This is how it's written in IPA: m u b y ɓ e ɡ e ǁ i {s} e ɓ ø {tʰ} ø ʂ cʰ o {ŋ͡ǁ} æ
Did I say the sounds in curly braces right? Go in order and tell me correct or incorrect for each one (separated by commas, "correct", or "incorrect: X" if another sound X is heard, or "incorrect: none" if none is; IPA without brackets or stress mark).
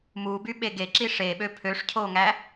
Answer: incorrect: ʂ, incorrect: pʰ, incorrect: ŋ